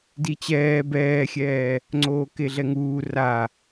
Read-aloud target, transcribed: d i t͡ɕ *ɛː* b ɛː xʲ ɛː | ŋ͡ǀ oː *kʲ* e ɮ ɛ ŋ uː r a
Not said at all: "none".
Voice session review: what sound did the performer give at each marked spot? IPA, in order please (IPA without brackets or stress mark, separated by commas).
ɛː, k